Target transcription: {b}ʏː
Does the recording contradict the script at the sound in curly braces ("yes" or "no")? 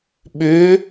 yes